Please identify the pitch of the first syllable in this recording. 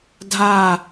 falling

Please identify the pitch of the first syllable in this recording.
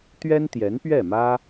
high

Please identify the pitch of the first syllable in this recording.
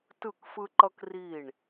falling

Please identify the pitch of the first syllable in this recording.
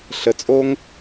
low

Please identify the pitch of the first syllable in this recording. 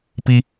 low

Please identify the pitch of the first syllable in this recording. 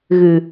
low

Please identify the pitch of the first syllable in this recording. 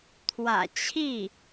low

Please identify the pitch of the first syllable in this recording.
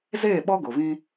falling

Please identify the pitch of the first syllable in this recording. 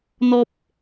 high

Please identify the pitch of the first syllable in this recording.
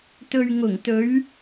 low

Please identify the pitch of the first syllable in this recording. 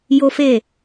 high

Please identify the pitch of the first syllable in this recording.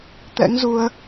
rising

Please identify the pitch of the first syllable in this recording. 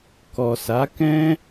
low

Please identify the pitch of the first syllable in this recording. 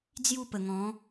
falling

